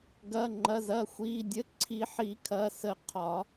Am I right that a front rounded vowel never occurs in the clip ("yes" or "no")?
yes